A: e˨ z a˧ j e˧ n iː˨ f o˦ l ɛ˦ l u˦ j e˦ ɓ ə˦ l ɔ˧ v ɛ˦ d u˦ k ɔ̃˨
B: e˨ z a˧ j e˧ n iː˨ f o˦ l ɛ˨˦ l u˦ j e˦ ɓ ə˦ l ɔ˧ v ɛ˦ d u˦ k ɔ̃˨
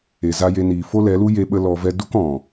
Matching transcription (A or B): B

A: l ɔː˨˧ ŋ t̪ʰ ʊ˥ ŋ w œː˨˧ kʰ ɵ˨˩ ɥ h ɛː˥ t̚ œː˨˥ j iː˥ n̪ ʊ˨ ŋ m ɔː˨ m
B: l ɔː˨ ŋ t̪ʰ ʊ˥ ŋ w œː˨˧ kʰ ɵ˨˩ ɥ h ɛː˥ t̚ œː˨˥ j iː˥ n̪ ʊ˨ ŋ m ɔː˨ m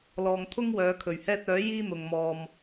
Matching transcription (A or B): B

